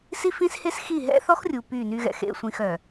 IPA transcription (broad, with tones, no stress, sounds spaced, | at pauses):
s i˦ f ĩ˦ s h e˦ s x i˦˨ ɦ ɛ̰˦ θ ɔ˦ x rʲ u˨ p y˦˨ n y˦ ɣ ɛ̰˨ x ḛ˦˨ sʷ ĩ˦˨ x œ˨